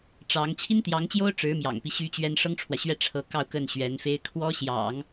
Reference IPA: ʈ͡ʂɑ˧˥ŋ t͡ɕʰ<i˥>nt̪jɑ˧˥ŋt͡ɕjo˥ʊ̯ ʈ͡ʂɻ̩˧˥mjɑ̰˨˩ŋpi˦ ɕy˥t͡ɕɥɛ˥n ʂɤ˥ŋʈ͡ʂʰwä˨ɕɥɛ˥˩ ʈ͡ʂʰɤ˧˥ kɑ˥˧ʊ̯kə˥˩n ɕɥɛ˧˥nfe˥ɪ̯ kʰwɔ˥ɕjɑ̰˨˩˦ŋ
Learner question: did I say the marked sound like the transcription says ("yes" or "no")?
yes